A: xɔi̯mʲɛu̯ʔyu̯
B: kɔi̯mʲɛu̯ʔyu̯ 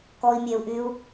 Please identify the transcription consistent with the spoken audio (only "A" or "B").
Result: B